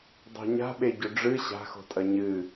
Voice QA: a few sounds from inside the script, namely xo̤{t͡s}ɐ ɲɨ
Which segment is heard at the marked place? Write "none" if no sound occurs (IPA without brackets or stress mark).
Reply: tʼ